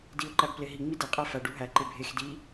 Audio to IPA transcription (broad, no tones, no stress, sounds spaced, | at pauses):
d i ʊ̯ ǃ æ b p l e ɦ i ŋ͡m i d e qʼ æ f æ ɖ u ɦ æ ǃ e bʱ e x d i